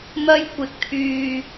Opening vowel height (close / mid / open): open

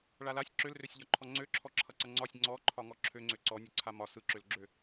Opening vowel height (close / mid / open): open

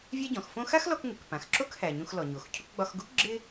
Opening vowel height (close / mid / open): open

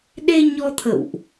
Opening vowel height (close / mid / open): mid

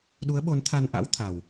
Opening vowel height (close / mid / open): close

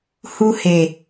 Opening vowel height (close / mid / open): close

